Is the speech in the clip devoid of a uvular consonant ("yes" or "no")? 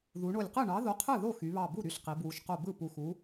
no